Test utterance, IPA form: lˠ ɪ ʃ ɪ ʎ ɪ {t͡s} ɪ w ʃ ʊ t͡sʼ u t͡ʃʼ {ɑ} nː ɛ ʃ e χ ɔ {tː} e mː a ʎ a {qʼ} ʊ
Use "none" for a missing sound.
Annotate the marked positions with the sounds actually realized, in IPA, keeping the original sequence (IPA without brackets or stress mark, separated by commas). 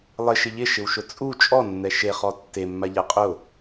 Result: ʃ, ɔ, tː, qʼ